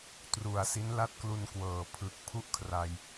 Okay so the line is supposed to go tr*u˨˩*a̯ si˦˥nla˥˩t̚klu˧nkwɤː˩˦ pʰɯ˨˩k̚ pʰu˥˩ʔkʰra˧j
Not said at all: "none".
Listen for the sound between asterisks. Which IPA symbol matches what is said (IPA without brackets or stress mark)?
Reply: u˨˩